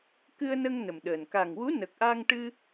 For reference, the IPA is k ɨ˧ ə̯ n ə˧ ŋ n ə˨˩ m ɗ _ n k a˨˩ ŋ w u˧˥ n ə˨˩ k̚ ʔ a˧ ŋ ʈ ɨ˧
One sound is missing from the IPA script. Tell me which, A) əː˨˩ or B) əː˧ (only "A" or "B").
A